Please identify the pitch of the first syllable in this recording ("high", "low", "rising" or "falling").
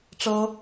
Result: high